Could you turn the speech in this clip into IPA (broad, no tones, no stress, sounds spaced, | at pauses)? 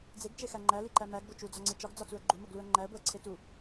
d͡z e ɡ t͡ʃ e x æ ŋ͡ǃ æ l i ǃ æ m æ ɡ b o t͡ʃ u d͡z ɒ ŋ͡ǀ e t͡ʃ ɒ ɡ d͡z ɒ t͡s u ə̯ ɡ͡ǃ u m o ɡ l u ə̯ ŋ͡ǃ æ ə̯ b o ə̯ ǀʰ e t u